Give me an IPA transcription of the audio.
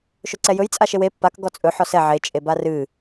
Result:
ʃ ɵ ǀ ɛ j ɵ j t͡sʼ a ʃ e w e pː a k ɡ ɔ t͡sʼ ɵ ħ ɔ s ɛ ʕ e t͡ʃʼ e b a r ɨ

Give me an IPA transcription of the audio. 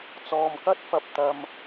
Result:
t͡s ɔː˨ m k ɐ˥ t̚ f ɐ˨ p̚ t̪ ɐ˨ m

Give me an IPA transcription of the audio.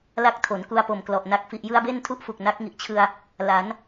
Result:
l a˦˥ k̚ tʰ o˩˦ n k u˧ a̯ p o˨˩ m k l ɔ˨˩ ʔ n a˨˩ k̚ f i˨˩ ʔ j ɯ˧ a̯ b e˥˩ n tʰ u˥˩ ʔ f u˨˩ k̚ n a˦˥ k̚ ŋ i˨˩ ʔ t͡ɕʰ ɯ˧ a̯ | l a˩˦ n

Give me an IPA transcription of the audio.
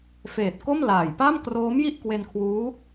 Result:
f eː˨˩ t̚ k o˥˩ m l aː˨˩ j p a˥˩ m k r oː˦˥ m j i˥˩ ʔ k w e˧ n kʰ w uː˦˥

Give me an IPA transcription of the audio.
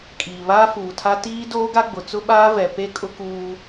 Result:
kʼ iː˨ β aː˦ f uː˨ tʰ a˦ t iː˦ d oː˦ ɡ a˦ ɡ͡b ʊ˨ t͡s ʊ˦ ɓ aː˦ v ɛ˨ p e˦ kʼ ʊ˦ k uː˦

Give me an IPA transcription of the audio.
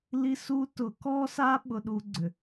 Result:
l i˦˥ s u˦˥ t ʊ˨˩˦ k ɔ˦˥ s a˦˥ ɓ ʊ˦˥ ɗ u˦˥ ɡ͡ǀ ʏ˨˩˦

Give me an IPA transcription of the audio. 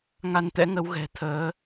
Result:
ŋ a˧ n t̪ ɛ̰˧˥ ŋ ə˨˦ w ɣ ɛ̤˨˩ t̪ʰ əː˨˦

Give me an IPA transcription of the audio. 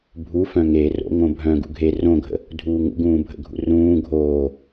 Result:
bʱ u f œ̃ ŋ e r o̰ ŋ õ bʱ œ̃ ɡ ṵ ɡʱ e r õ ɡʱ ə̰ | dʱ uː ŋ ṵ ɡ ũː bʱ ə̰ ɡʱ ṵ r ũː ɡʱ oː

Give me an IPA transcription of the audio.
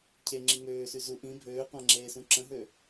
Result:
cʰ e ŋ͡ǁ i ŋ øː s y z u ʔ ĩ bʱ øː qʷ ã ŋ͡ǁ eː s ũ ǁ ə̃ ɦ ø

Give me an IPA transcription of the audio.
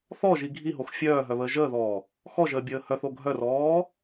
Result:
θ ɔ ʒ i ɡʱ i ɦ o x fʲ œː ɦ œ β əː ʒ əː ð ɔː | x ɔ ʒ əː bʲ əː h œ θ o ɡʱ œ r ɔː

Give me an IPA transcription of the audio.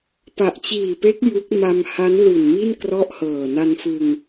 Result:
p a˨˩ ʔ t͡ɕ iː˨˩ p e˦˥ k̚ j u˦˥ k̚ m a˧ m h a˦˥ n l u˨˩ n m i˥˩ n k r ɔ˥˩ ʔ h ɤː˨˩ n a˧ n f ɯ˧ ŋ

